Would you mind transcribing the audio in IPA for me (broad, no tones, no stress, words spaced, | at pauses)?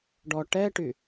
ɖɔ ʈɛʈy